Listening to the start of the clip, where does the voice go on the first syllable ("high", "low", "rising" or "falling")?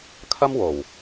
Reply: high